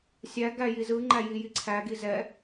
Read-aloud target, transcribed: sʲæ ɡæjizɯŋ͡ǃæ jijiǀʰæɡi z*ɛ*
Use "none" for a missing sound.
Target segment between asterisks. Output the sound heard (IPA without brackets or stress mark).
ɛ